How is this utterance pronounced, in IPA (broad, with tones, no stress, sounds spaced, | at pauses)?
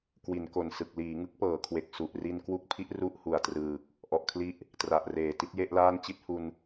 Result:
k w i˩˦ n k o˨˩ n s ɯ˨˩ k̚ l iː˩˦ ŋ ɯ˦˥ k̚ p ɤː˩˦ kʰ w e˨˩ k̚ s u˨˩ ʔ r i˧ n k w u˦˥ k̚ pʰ i˦˥ ʔ r u˥˩ ʔ h u˨˩ a̯ t r ɯː˨˩ k̚ | ʔ ɔ˨˩ ʔ kʰ l i˦˥ ʔ | t r a˨˩ ʔ r eː˨˩ t i˦˥ t̚ j e˥˩ ʔ l aː˥˩ n t͡ɕ i˥˩ t̚ h u˧ n